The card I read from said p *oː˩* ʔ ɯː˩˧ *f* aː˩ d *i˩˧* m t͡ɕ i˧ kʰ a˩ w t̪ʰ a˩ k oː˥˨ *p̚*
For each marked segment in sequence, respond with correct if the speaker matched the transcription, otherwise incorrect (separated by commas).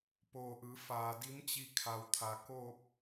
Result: correct, correct, incorrect, correct